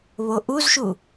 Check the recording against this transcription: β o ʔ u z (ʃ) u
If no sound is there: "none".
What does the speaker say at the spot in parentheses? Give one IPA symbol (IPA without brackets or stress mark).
ʃ